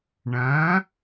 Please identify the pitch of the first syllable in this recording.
rising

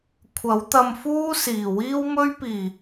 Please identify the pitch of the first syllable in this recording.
rising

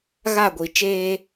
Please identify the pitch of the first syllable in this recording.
falling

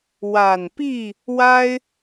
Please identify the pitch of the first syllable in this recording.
low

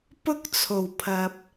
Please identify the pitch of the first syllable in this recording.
high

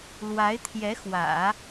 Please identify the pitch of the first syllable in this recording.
rising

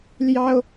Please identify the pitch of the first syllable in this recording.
high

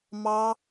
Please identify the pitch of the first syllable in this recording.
high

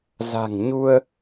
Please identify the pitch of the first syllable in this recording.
low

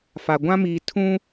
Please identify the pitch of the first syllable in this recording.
low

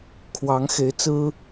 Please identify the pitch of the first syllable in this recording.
rising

